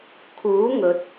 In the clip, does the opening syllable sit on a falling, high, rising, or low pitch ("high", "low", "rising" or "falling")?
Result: rising